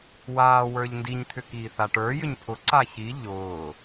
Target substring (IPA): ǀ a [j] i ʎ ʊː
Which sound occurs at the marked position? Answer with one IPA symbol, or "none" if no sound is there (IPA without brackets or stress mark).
ç